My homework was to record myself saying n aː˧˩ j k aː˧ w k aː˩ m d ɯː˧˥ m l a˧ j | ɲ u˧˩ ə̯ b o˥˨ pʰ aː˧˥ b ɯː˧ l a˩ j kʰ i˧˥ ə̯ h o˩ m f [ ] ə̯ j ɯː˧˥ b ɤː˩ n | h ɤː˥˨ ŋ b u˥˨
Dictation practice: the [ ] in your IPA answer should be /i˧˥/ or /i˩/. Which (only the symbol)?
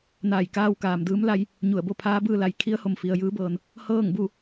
i˩